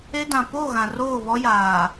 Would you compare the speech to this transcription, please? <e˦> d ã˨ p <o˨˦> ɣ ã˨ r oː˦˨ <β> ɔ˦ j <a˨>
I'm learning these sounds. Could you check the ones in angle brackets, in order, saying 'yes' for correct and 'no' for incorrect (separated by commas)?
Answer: yes, no, yes, no